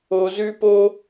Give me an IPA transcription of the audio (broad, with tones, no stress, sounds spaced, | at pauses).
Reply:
o˧ z ʉ˦ p o˦